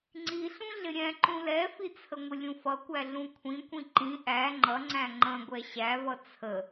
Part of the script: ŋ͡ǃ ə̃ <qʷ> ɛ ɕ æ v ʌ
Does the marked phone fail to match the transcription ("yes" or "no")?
yes